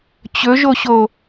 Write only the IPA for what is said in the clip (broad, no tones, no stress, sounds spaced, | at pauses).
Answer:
t͡ɕ ɵ ʒ o ɕ o